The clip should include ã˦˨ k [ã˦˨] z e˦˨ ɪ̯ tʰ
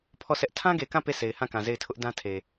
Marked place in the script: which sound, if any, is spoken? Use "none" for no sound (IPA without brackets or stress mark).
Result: ã˨